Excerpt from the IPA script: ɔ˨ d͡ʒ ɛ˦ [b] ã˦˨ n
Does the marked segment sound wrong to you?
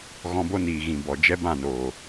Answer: no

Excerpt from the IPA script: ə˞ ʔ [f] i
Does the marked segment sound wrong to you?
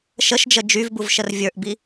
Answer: yes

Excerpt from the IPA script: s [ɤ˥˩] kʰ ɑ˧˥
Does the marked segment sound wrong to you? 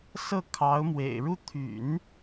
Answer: no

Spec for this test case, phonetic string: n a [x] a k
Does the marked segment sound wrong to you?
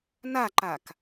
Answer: yes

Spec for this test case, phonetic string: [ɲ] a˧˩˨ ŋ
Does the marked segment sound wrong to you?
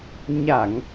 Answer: no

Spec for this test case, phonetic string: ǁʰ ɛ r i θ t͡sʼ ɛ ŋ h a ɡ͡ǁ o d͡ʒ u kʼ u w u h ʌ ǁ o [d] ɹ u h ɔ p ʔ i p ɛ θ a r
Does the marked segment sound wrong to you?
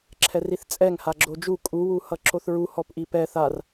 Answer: yes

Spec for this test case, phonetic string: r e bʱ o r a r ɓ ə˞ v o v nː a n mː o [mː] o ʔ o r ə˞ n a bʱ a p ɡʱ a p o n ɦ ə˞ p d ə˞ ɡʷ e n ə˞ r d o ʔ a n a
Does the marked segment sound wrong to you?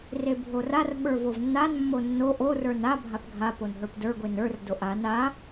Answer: yes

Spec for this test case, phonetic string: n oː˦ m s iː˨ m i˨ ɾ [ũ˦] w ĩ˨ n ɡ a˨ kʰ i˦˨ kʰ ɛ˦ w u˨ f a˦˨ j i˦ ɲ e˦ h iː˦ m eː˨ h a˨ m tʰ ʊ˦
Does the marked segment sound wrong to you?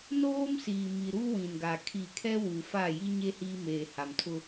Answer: yes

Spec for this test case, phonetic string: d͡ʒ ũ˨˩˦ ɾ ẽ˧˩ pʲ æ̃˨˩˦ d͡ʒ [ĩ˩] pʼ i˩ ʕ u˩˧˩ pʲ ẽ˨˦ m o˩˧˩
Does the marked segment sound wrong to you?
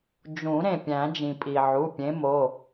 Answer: no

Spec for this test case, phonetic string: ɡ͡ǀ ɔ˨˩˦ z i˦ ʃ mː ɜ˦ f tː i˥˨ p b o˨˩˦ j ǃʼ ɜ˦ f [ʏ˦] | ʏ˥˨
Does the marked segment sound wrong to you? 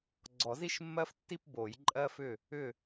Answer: yes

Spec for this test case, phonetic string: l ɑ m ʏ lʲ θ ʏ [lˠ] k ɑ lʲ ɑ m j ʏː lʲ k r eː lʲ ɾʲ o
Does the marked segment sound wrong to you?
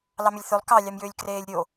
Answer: no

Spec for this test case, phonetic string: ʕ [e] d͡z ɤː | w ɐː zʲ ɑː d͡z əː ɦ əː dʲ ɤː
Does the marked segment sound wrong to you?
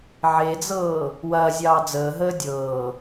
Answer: no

